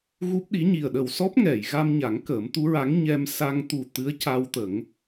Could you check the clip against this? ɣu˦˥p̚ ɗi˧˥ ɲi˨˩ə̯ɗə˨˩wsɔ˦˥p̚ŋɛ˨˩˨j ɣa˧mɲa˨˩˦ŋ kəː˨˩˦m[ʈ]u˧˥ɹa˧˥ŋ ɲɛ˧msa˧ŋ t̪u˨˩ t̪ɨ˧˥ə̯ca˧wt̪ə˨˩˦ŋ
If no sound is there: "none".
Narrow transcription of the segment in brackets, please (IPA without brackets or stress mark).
t̪